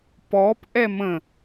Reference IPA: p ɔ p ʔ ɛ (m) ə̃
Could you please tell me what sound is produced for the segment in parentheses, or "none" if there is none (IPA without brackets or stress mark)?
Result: m